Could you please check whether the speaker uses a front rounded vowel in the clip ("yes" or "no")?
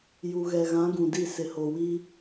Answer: no